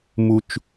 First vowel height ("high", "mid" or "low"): high